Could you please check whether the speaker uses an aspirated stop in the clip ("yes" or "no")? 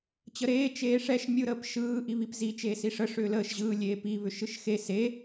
no